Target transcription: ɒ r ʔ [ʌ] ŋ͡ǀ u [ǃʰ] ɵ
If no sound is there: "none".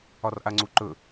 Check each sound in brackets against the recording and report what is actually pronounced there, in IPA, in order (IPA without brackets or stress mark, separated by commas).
a, ǃ